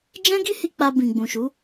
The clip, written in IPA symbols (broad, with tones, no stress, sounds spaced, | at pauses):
d͡ʒ ɛ̃˦ ɡ i˦ h i˧ k͡p a˧ b ĩ˨ ɡ͡b ũ˨ ʃ u˨˦